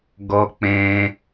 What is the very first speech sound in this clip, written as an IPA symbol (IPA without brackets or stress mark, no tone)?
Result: ɡ